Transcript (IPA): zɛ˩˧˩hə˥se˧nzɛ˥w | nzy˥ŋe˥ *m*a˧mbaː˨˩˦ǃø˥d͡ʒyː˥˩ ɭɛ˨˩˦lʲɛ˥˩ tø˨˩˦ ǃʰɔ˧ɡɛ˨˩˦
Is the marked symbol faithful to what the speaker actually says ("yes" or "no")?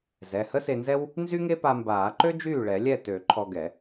no